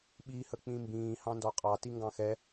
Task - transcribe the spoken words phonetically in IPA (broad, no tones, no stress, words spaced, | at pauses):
ɓi hək͡pĩmbĩː hɑ̃ndɔqʼɑ tiŋɡɑ̃xɛ